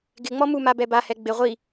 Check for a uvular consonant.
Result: present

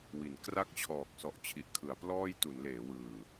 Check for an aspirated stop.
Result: present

